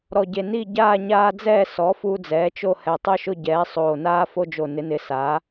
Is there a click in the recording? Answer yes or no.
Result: no